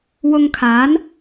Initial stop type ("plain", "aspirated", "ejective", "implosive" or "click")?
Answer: aspirated